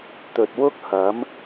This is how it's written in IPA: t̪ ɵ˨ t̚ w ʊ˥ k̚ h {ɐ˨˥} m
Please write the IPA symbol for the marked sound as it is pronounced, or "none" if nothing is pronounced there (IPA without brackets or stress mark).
ɐ˨˥